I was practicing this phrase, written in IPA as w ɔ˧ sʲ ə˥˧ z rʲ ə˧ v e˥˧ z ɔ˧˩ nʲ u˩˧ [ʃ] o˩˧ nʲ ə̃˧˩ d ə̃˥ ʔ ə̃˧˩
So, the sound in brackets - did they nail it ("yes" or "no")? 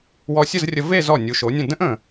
yes